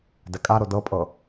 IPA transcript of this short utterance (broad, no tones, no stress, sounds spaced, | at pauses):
d ɛ kʼ a ɾ o d ɤ pʼ ɤ